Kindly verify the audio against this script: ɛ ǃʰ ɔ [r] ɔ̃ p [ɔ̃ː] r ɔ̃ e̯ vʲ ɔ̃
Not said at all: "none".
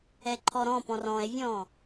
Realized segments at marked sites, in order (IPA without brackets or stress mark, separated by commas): ɾ, ɔ̃